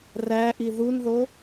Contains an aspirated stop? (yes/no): no